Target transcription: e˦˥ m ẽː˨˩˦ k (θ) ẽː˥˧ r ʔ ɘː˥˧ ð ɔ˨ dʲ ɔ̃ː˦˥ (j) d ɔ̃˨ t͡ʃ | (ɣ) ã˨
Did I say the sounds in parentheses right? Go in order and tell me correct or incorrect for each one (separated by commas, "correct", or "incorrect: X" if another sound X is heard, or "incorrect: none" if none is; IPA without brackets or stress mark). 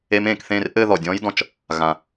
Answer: correct, correct, correct